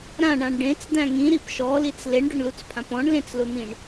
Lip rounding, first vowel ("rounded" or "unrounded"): unrounded